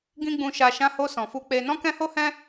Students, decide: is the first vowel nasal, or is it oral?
nasal